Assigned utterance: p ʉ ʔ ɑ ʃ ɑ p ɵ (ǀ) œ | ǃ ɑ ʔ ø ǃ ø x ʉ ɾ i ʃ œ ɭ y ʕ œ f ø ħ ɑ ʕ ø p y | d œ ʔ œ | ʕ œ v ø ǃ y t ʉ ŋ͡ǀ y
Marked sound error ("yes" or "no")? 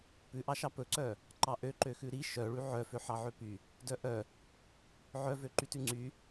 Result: no